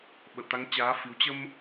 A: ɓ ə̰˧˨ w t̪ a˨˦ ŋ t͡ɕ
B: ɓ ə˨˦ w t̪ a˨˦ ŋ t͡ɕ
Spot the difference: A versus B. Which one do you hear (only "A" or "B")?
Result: A